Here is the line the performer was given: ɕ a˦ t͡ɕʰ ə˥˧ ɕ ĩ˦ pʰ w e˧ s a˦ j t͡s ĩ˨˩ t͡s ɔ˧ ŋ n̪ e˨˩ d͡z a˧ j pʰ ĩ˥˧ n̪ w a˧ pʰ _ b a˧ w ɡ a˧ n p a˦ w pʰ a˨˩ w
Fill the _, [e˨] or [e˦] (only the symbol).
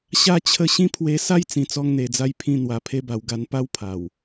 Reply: e˦